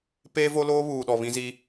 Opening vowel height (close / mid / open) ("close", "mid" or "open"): mid